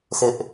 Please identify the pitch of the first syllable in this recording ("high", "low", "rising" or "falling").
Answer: high